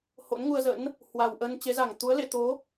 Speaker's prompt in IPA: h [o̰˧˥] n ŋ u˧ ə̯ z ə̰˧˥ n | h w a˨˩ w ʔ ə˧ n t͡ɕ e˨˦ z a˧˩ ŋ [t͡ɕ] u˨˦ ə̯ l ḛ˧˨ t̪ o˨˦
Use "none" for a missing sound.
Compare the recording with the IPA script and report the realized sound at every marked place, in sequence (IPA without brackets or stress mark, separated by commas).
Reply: o̰˧˥, t̪